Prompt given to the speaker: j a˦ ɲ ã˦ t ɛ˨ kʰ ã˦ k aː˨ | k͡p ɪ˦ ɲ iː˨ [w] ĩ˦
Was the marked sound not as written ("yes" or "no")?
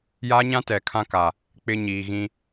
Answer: yes